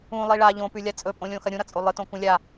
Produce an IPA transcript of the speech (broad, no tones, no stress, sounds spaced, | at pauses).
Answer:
ũ lˠ i ɭ a ʎ õ p ʉ lʲ a t͡sʼ ɵ pʼ õ lʲ õ x ɐ ɾʲ ũ ɾ ɐ t͡sʼ o lˠ ɨ t õ k ũ lʲ a